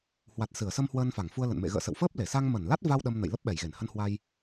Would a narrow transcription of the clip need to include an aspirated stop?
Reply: no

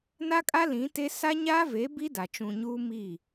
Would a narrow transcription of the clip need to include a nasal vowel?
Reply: yes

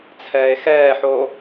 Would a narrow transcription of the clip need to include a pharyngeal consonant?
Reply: yes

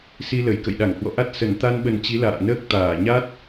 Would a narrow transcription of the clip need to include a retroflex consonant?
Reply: no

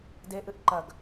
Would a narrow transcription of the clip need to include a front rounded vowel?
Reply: no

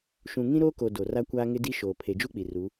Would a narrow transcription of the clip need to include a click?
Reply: no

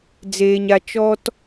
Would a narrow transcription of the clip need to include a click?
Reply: no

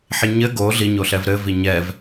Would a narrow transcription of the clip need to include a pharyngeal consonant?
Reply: yes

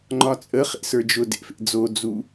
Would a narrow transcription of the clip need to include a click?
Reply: yes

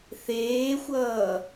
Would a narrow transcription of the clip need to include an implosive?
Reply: no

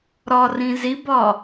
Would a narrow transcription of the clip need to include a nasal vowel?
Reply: yes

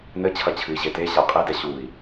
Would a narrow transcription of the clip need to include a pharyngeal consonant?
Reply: no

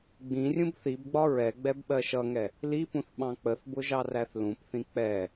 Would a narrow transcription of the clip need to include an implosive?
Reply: yes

